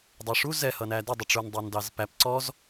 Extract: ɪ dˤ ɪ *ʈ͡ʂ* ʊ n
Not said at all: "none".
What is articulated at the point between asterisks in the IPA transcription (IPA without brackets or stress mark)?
ʈ͡ʂ